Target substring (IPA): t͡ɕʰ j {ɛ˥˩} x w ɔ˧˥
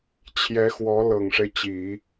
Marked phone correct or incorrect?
incorrect